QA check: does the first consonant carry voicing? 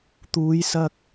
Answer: no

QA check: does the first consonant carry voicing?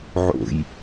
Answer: yes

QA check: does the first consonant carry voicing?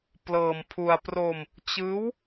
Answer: no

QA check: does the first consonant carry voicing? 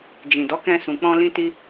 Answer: yes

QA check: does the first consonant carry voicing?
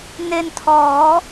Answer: yes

